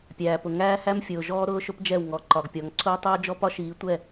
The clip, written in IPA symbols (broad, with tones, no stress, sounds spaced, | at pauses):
pʲ æː˨ p ʊ˨ ŋ æː˦ h æ˦ m fʲ ʊː˨ ʒ ɔː˦ ɾ ʊː˦ ʃ ʊ˦ p d͡ʒ ɛ˦˨ w ŋ ɔ˨ ǃ ɒ˨ ɡ pʲ ɔ˨˦ ŋ ǀʰ ʊː˦ tˤ ʊː˦ d͡ʒ ɔ˦ p ɒ˦ ʃ iː˨˦ tʷ ɛ˦˨